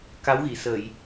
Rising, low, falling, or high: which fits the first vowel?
rising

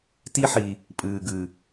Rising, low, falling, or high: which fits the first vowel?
high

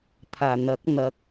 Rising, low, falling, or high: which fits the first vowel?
low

